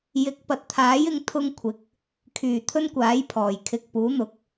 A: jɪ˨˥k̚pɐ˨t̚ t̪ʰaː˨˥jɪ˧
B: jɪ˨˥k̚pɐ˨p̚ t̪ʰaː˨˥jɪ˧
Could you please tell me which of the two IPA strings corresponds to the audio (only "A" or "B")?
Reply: A